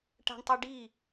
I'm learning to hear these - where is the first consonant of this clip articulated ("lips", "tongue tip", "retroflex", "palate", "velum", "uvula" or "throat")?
retroflex